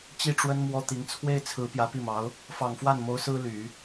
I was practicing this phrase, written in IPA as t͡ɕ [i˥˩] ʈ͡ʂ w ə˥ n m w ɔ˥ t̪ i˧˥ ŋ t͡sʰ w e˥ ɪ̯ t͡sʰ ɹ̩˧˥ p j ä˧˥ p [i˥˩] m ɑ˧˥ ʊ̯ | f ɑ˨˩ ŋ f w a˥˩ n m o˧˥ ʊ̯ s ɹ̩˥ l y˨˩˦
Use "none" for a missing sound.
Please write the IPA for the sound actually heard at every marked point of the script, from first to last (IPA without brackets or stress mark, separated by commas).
i˥˩, i˥˩